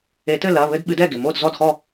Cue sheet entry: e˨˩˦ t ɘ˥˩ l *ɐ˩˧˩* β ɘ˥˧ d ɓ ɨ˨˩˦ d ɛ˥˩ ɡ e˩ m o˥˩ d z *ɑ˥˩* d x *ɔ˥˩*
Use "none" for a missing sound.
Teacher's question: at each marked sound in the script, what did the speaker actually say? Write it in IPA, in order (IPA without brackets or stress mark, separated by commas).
ɐ˩˧˩, ɔ˥˩, ɔ˥˩